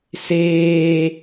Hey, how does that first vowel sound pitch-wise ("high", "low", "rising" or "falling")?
high